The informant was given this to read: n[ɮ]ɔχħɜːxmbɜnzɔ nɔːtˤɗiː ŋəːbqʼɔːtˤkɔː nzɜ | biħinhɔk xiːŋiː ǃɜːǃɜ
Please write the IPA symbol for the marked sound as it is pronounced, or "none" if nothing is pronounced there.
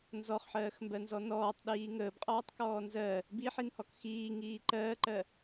z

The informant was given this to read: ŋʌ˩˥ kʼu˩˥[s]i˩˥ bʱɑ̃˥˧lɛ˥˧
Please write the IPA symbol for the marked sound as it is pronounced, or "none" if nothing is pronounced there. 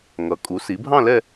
s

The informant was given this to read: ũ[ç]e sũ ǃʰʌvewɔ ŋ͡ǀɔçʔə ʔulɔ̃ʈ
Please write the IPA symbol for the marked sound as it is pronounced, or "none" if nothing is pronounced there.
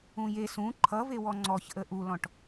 j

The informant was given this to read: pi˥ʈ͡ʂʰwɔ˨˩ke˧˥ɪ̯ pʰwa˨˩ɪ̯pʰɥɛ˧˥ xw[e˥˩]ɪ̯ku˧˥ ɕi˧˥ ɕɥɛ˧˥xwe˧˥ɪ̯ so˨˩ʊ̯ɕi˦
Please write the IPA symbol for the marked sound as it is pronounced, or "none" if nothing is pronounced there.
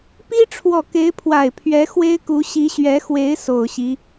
e˥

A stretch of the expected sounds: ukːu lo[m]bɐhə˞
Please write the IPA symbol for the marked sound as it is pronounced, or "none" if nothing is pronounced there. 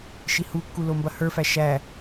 m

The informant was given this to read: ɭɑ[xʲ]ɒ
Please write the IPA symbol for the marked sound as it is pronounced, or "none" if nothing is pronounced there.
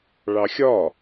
xʲ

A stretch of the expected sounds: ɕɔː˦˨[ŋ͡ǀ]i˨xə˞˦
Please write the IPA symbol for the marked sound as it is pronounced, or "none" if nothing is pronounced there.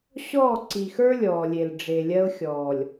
ǀ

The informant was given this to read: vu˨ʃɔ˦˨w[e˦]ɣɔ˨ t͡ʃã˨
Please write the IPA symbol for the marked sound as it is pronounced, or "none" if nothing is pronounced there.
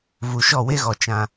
e˦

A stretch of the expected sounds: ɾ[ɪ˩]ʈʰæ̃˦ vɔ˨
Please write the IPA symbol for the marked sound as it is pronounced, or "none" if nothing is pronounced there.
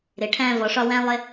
ɪ˩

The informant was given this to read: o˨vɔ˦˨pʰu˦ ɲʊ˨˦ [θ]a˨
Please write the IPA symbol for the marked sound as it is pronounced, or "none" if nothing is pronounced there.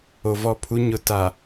t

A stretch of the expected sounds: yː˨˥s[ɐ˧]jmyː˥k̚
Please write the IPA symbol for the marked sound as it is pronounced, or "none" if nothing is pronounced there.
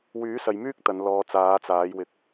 ɐ˨˧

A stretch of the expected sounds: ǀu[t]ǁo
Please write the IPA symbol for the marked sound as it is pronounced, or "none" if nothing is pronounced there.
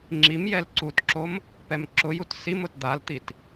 t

